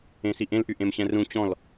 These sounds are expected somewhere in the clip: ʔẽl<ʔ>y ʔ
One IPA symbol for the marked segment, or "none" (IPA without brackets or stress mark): ʔ